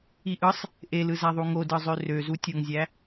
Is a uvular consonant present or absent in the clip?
absent